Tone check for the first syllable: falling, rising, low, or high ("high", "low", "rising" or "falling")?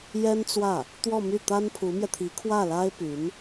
high